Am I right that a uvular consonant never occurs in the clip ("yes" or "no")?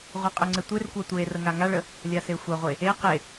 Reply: no